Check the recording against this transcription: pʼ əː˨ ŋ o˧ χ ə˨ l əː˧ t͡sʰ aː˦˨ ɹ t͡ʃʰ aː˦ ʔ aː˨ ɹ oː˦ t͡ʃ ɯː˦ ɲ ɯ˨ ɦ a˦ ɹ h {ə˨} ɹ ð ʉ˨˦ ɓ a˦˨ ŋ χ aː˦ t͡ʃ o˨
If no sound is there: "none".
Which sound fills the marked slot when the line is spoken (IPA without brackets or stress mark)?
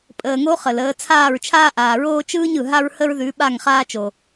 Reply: ə˦